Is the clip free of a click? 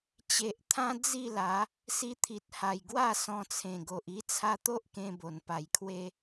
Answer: yes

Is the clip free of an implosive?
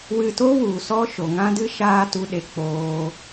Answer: no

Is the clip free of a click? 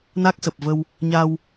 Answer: yes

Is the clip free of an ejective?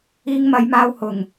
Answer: yes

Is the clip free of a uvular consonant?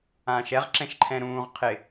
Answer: no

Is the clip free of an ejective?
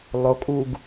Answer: no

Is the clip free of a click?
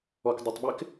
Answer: yes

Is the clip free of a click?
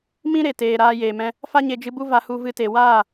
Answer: yes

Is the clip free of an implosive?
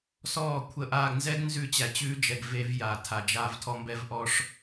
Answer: yes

